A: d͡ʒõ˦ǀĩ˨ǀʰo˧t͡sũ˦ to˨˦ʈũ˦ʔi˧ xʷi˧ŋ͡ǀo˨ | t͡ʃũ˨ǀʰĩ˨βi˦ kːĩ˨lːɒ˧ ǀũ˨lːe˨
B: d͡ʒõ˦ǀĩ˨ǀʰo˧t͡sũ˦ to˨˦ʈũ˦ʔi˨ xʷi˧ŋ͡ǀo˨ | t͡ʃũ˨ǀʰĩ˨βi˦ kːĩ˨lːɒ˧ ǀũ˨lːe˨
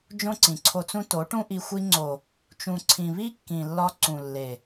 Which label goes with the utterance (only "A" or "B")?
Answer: A